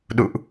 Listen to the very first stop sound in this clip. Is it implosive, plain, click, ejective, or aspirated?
implosive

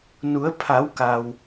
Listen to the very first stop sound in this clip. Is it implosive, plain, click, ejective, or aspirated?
aspirated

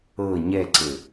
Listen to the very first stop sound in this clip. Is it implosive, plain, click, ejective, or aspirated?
click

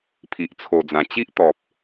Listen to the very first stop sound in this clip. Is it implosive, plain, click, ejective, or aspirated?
aspirated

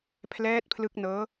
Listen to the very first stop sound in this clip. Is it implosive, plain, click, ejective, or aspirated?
aspirated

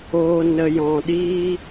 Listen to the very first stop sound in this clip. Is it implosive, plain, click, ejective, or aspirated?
implosive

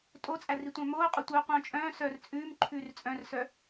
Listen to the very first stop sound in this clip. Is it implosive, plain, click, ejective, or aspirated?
ejective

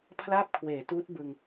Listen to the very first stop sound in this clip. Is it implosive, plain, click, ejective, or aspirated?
aspirated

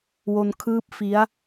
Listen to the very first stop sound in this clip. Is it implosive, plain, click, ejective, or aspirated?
aspirated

